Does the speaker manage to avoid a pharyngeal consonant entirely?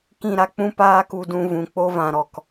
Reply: yes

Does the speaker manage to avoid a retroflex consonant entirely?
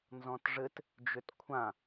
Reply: no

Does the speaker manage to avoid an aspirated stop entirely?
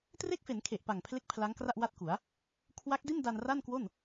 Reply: no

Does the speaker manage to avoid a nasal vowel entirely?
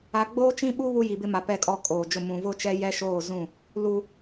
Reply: no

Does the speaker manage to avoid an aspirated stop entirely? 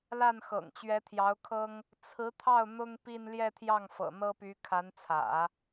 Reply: no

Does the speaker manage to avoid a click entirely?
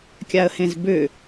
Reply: yes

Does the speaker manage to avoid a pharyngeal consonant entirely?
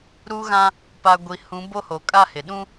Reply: yes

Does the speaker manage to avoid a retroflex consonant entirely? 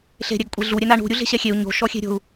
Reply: no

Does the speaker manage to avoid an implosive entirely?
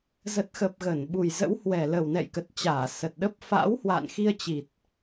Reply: no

